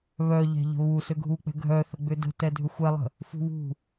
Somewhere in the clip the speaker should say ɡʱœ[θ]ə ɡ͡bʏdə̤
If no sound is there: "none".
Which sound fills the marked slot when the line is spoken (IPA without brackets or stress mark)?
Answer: θ